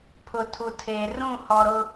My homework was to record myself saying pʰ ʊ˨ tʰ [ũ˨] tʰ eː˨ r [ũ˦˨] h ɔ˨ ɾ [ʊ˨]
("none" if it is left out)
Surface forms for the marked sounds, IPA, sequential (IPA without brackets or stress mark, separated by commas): u˨, ũ˦˨, ʊ˦